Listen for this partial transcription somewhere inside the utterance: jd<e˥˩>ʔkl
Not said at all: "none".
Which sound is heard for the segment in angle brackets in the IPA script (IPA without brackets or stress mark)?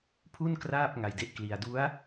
e˥˩